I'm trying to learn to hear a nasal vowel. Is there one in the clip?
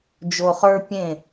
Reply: yes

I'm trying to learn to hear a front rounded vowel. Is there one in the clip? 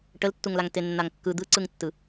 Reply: no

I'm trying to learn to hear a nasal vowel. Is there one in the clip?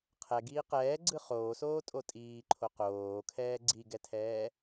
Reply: no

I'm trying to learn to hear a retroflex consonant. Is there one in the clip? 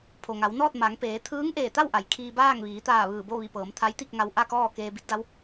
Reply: no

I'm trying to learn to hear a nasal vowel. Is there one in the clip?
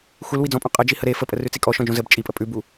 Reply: yes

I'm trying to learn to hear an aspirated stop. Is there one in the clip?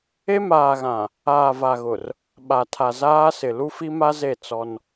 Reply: yes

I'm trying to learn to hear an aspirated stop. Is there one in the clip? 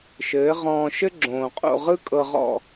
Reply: no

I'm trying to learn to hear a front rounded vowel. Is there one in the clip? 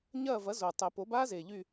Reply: yes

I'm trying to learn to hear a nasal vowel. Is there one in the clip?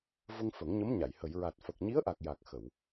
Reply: no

